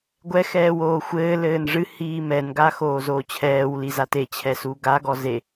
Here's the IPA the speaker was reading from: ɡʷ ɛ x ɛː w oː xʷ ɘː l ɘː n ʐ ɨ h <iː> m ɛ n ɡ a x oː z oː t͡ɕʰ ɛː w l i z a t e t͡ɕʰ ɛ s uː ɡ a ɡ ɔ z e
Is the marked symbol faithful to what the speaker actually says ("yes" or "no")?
yes